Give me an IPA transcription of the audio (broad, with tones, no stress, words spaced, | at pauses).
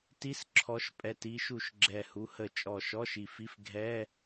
ti˧˥˧sǁʰɔ˨˦ʃpʼɛ˨˩ti˨˦ ʃu˨˩ʃɡ͡ǁɛ˨˩hu˨˦hə˨˩ t͡ʃʼɔ˨˩ʃɔ˧˥˧ʃi˨˩fi˧˥˧f ɡʱɛ˧˥˧